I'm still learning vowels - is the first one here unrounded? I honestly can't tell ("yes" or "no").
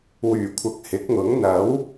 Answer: no